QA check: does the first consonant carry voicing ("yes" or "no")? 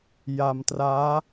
yes